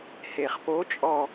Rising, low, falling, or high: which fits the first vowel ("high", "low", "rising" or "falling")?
low